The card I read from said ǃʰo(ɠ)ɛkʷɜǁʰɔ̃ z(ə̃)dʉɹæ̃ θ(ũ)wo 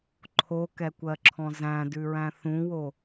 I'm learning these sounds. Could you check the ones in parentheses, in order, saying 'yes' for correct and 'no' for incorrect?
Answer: no, no, yes

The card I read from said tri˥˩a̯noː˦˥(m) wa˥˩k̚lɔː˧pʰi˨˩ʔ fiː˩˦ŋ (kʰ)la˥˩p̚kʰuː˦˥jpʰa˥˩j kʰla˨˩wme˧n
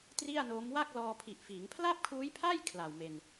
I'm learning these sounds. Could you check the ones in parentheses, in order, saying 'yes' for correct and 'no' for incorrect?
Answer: yes, no

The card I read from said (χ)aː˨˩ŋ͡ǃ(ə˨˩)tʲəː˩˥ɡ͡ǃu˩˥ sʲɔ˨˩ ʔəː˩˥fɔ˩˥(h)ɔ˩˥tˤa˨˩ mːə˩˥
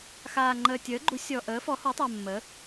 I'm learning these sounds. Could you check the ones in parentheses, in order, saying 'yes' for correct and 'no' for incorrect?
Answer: no, no, yes

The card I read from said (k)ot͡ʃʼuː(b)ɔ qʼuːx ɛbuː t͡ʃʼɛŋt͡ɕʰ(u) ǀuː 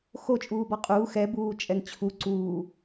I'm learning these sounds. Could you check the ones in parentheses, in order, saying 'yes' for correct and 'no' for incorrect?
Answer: no, yes, yes

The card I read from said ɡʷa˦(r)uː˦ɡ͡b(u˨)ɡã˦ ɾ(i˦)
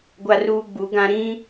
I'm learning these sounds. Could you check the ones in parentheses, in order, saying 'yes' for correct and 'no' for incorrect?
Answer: yes, no, no

